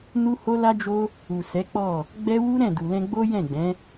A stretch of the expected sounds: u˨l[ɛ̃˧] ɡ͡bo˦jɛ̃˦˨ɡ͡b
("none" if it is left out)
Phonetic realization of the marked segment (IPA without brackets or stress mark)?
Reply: ɛ̃˧